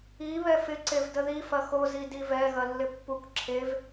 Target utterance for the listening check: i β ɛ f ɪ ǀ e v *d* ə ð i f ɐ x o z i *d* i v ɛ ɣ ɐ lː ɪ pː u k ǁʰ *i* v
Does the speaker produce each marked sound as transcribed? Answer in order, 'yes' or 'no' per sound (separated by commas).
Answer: yes, yes, no